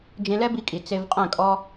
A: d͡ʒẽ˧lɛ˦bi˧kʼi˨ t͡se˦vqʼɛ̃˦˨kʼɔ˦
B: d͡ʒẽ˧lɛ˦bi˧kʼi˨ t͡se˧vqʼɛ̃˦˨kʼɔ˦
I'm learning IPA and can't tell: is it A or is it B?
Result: B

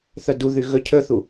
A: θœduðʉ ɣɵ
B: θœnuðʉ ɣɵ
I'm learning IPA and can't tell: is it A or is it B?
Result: A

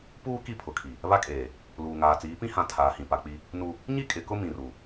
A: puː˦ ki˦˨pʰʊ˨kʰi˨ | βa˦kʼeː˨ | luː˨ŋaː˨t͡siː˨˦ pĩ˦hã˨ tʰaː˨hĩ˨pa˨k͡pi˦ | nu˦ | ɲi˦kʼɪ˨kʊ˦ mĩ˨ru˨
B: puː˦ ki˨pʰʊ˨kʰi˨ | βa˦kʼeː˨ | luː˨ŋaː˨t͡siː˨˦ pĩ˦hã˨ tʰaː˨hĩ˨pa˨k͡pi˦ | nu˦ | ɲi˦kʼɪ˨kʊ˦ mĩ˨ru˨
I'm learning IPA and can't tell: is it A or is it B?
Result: A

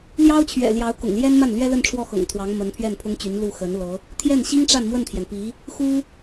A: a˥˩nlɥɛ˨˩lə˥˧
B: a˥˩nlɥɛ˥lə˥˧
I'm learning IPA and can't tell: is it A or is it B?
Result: B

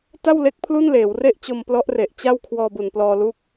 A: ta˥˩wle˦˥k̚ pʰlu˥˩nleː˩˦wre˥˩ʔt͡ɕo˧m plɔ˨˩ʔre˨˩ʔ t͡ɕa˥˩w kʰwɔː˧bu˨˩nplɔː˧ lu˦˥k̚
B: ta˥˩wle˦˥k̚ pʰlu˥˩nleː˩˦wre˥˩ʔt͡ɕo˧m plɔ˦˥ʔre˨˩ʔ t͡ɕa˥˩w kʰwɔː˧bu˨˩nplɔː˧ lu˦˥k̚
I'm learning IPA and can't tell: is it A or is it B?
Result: B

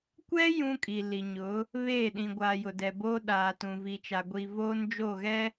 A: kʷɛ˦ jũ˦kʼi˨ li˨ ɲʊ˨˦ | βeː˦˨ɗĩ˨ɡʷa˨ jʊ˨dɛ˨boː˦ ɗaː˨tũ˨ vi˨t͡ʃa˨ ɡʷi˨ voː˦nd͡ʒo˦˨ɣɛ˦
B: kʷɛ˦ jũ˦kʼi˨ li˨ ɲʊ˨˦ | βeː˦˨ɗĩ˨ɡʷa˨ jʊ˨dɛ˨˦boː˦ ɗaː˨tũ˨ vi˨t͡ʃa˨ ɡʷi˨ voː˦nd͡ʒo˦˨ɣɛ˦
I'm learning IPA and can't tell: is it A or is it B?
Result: A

